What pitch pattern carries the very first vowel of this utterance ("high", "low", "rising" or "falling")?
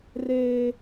high